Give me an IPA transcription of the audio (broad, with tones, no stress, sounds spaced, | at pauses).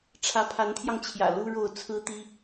ʈ͡ʂʰ ä˧˥ pʰ a˧˥ n t̪ʰ j ɑ˧ ŋ t͡ɕʰ j ä̰˨˩ l u˥ ɻ o˥˩ ʊ̯ t͡sʰ ɹ̩˥ t̪ i˥